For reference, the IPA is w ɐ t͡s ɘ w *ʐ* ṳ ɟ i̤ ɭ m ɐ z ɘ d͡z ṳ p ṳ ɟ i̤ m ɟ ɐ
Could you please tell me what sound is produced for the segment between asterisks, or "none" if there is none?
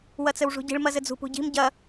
ʐ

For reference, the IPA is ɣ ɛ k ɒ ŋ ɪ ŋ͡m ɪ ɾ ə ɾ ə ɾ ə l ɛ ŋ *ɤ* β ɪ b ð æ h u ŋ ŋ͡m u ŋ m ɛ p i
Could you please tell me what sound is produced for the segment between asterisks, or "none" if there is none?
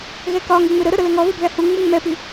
ɔ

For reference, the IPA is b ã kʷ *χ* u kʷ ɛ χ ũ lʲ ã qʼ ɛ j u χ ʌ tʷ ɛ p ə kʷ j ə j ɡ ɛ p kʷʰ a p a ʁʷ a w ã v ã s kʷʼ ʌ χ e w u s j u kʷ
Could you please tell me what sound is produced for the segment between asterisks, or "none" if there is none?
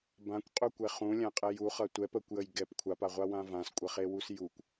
qʼ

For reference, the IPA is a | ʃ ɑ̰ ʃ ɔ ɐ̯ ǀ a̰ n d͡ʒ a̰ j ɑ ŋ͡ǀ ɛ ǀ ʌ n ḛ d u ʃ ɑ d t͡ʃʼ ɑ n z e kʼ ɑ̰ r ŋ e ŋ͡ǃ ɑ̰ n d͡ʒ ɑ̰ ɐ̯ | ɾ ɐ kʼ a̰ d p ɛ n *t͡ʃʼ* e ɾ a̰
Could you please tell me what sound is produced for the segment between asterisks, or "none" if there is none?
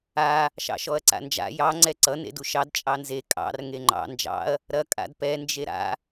d͡ʒ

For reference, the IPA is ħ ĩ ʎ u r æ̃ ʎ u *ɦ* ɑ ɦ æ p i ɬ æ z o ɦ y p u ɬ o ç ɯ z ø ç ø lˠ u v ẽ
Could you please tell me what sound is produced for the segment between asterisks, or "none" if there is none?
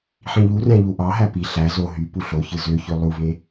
ʔ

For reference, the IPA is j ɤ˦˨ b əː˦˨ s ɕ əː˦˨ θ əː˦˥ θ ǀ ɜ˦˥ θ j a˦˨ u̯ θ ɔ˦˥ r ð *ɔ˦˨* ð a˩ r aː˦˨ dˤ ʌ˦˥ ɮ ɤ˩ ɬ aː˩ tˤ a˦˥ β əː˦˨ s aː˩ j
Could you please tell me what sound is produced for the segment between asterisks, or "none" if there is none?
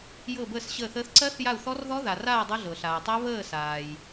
ɔ˦˥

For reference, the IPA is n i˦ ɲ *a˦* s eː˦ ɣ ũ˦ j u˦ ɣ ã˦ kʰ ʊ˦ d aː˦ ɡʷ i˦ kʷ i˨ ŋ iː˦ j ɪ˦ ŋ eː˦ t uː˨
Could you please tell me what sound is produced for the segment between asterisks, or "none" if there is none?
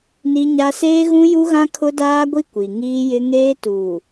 a˦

